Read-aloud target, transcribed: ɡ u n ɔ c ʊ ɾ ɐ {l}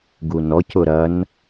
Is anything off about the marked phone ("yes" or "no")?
yes